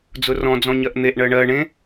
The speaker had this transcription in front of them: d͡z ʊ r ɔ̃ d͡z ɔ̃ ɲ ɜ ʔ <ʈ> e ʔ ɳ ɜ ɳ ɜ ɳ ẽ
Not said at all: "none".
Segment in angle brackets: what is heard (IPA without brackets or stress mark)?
n̪